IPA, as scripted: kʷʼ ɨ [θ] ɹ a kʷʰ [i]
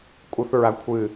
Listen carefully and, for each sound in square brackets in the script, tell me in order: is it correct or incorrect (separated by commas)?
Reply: correct, incorrect